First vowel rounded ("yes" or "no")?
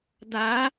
no